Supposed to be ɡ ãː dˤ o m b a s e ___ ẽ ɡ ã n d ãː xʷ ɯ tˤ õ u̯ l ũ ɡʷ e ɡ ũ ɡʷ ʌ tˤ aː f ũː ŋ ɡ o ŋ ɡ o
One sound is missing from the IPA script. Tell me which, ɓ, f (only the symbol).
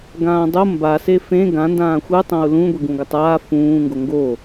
f